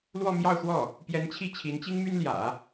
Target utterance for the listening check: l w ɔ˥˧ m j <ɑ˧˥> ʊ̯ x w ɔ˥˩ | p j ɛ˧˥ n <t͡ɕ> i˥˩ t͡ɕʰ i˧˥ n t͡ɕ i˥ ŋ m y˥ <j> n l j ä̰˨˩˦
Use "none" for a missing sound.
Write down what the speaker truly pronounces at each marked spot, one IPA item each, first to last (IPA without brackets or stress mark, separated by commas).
ɑ˥˧, t͡ɕʰ, none